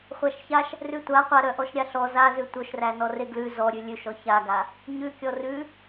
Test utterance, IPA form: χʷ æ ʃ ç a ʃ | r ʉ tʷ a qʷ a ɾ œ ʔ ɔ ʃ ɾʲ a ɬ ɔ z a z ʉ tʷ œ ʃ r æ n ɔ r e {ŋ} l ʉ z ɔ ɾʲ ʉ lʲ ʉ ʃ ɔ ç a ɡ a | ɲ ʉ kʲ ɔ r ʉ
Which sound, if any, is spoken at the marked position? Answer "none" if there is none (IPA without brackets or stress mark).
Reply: ɡ